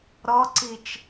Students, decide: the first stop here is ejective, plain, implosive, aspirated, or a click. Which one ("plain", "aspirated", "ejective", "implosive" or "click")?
click